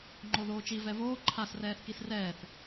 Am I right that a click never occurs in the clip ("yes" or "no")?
no